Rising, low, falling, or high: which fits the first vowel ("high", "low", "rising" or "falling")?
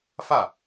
falling